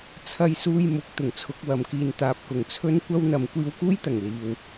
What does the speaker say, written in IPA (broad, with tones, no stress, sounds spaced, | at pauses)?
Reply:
t͡sʰ ɐ˧ j s uː˧ j m ʊ˨˥ k̚ t̪ ʊ˨˩ ŋ t͡sʰ ʊ˨˥ k̚ w ɐ˨ m k iː˧ n t̪ aː˨ p̚ k ʊ˨˩ ŋ t͡sʰ ɵ˥ n kʷ ɐ˥ w n̪ ɐ˨˧ m kʷ iː˧ w k uː˥ j t̪ ɐ˨˩ ŋ l iː˨ w